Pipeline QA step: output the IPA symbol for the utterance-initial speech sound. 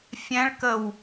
fʲ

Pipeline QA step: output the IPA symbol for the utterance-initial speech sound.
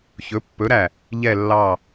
ç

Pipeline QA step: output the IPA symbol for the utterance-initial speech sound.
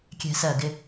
kʲ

